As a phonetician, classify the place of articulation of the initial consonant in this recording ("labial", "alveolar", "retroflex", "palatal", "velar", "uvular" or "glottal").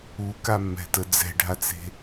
velar